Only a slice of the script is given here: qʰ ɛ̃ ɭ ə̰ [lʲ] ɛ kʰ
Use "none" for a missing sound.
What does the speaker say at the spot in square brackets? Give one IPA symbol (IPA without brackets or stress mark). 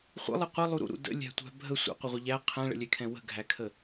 lʲ